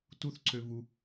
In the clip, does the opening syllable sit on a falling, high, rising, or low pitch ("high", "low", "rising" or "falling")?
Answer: falling